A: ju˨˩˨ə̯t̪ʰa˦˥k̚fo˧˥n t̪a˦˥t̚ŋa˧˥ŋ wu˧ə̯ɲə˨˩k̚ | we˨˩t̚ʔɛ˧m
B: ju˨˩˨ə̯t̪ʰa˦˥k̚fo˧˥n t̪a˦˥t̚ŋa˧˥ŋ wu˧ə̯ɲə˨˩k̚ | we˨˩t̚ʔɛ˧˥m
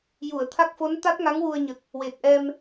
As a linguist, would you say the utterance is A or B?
A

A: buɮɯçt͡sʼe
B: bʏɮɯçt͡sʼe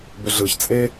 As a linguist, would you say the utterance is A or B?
B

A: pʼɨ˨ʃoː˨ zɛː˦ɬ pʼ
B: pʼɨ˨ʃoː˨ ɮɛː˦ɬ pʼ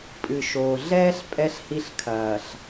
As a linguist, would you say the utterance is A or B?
B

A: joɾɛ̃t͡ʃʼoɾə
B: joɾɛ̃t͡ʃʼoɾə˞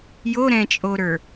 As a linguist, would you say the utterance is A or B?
B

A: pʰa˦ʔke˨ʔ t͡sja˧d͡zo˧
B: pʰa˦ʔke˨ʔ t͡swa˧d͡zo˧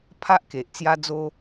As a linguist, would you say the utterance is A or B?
A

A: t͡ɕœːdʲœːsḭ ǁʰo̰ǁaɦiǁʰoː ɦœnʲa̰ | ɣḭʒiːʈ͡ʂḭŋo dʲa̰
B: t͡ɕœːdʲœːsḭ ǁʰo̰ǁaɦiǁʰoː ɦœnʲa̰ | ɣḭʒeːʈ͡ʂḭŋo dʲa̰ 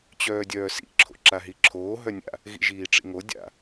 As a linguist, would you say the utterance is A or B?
A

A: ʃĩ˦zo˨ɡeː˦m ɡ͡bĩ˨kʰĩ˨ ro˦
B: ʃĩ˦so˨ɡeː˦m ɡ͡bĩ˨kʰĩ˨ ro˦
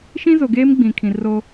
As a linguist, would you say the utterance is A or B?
A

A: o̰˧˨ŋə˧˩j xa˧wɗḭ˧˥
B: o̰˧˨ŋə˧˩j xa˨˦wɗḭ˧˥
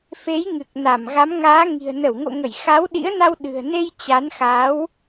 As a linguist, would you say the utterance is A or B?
B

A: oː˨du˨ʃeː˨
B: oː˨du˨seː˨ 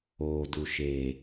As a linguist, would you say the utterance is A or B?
A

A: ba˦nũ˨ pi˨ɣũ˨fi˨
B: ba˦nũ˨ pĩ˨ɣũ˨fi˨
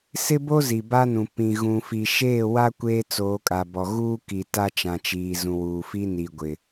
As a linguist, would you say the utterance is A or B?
B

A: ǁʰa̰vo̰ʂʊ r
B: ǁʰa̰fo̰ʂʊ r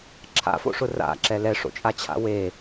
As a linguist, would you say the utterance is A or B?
B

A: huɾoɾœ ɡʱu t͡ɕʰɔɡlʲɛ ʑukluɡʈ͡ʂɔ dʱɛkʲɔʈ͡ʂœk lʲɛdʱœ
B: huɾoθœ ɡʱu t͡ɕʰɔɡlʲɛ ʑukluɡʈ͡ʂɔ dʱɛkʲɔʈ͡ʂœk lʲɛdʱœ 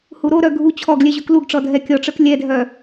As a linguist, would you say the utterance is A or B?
A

